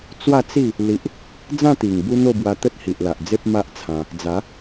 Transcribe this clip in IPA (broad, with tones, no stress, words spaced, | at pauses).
t͡swa˥˧t͡si˥˧ | li˦ʔ | d͡zã˥˧t̪i˨˩ŋ bu˦n̪o˥˧bwa˧ t̪ə˦t̚hi˨ʔla˨ʔd͡ze˦p̚ ma˦ʔt͡sʰã˧ | d͡za˨˦